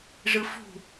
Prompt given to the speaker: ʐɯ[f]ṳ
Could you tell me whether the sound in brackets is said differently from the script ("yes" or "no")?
no